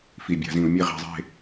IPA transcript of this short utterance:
f i˨˩ bʲ a̤˧˩˧ z ĩ˧˩˧ u̯ mʲ e˥˨ ʁ i̤˧˩˧ zˤ e̤˥˨

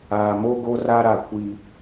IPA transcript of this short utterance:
aː˨ m o˦ ɡ o˦ r a˦ ɾ a˨ kʷ i˦

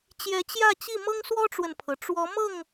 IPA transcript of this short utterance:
t͡ɕ j ɛ˨˦ t͡ɕ j ä˥˨ t͡ɕ i˥˨ m ɤ˦ ŋ s w ɔ˦ ʈ͡ʂ w ə˨ n pʰ ɤ˩ ʈ͡ʂ w ɔ˨˦ m ɤ˥˨ ŋ

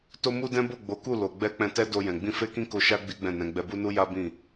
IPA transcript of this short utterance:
t o˦ m u˦ d ɛ̃˦ b o˦˨ ɡ͡b o˨˦ k u˦˨ l o˨ ɡ͡b ɛ˧ k͡p ɛ̃˧ t ɛ˦ d o˧ j ɛ̃˨ ɡ͡b ĩ˧ f e˦ k ĩ˦ k o˧ ʃ a˦ ɡ͡b i˦ ɡ͡b ɛ̃˦˨ n ɛ̃˨˦ ɡ͡b ɛ˧ b u˦ n u˦ j a˦ b ĩ˦˨

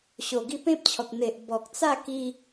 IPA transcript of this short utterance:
ɕ o˨˩ ɡ i˧ p ẽ˦ p̚ t͡ɕʰ ɔ˨ k̚ n̪ e˨ ʔ b ɔ˨ k̚ t͡s a˥˧ k i˧

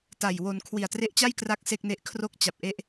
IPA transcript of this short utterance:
t a˨˩ j w o˧ n kʰ w i˨˩ a̯ t r e˦˥ ʔ t͡ɕ a˥˩ j k r a˥˩ k̚ s e˥˩ k̚ n e˦˥ ʔ kʰ r o˥˩ k̚ t͡ɕ a˨˩ p̚ ʔ e˦˥ ʔ

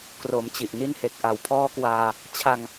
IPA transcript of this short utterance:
k r o˩˦ m t͡ɕ i˨˩ ʔ n i˧ n h e˨˩ k̚ ʔ a˨˩ w pʰ ɔː˦˥ k w aː˧ | t͡ɕʰ a˧ ŋ

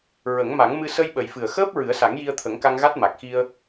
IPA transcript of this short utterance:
ɹ ə˨˩˦ ŋ m a˨˩˦ ŋ m ɨ˧ s ə˧ j ɓ ə˨˩ j f ɨ˨˩ ə̯ x əː˦˥ p̚ ɹ ɨ˨˩˦ ə̯ s a˨˩˦ ŋ j i˧ ə̯ t̪ʰ ə˨˩˦ ŋ k a˧ ŋ ɣ a˦˥ t̚ m a˨˩ k̚ x i˧ ə̯

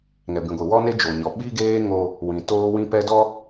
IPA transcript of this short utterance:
ŋ ɛ˨ b ĩ˨ ɡʷ i˨ w ɔ˦ n e˦ d͡ʒ o˨ ɲ ɔ˨ ɓ i˦ ɡ eː˦ ŋ o˦ | w ĩ˨ t oː˦ w ĩ˦ p ɛ˦ d ɔ˦

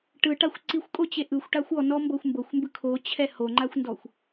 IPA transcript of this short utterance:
ʈ ɯ ʈ a xʷ ǀ i xʷ kʼ o t͡ɕ e ʔ ɯ xʷ ʈ a xʷ ɔ n ɔ m b ɤ xʷ m b ɤ xʷ m b ɯ kʰ o t͡ɕʰ ɛ h o ŋ͡ǃ a xʷ n d ɔ xʷ

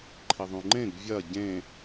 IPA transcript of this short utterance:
ǃʰ i ðˤ ũ ŋ͡ǃ ẽ ɡ vʲ ɐ ɟ ẽ

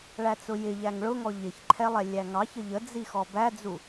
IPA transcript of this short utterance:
ɭ æ t͡s ʊ j ɪ ʎ æ ŋ ɭ ʊ ŋ ɔ ʎ ɪ ç ǃʰ ɛ lˠ ɛ lʲ æ ŋ ɑ ç ə ʎ ə d͡z i x ɔ b æ d͡z u

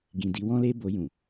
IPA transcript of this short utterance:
ɡ ĩ˨ d i˧ w ɔ̃˦ l e˦ b o˧ j ũ˨

